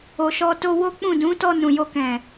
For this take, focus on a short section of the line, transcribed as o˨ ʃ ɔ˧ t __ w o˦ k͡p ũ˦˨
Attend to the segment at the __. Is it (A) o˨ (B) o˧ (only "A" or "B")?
B